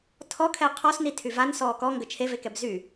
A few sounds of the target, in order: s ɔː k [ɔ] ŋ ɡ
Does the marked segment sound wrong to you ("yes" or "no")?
no